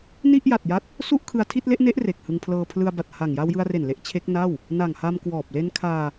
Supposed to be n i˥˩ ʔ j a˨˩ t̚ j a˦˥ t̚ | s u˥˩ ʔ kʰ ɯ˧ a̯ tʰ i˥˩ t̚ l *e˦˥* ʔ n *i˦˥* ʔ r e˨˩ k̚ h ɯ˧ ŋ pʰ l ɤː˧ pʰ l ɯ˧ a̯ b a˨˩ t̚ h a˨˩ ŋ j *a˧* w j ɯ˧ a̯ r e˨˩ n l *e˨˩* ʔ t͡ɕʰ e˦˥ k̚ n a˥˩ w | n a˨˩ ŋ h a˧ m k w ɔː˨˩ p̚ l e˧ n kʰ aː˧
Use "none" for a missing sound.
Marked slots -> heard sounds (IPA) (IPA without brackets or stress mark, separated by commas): e˦˥, e˦˥, a˧, e˦˥